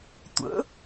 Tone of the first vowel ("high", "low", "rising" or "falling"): rising